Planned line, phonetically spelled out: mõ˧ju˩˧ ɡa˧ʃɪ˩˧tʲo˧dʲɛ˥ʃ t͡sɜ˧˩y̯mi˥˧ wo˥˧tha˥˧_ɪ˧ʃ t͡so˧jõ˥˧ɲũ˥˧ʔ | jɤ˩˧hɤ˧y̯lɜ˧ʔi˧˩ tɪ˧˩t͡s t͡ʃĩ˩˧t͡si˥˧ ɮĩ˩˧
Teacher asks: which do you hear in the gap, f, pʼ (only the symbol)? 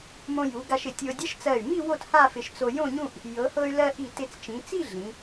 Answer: f